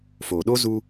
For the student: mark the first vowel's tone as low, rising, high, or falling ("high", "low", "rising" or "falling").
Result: low